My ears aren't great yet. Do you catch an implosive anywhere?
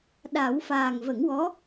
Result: yes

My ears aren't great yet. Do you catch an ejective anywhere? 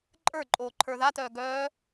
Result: yes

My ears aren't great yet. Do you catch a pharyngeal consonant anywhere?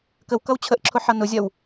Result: yes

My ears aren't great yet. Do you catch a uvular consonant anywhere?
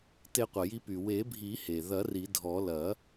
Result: yes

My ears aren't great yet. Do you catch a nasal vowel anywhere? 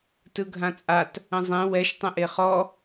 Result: yes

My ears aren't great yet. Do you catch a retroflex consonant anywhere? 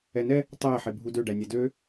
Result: yes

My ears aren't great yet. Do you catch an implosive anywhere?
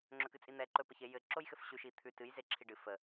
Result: no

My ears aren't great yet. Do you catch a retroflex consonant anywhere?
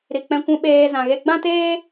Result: no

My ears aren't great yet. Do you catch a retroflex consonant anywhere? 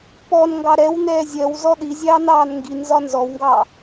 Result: no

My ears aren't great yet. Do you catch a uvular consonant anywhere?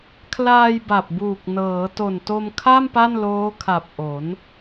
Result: no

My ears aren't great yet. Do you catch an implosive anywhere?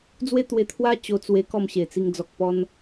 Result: no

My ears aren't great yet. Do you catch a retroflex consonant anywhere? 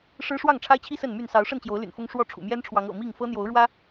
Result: yes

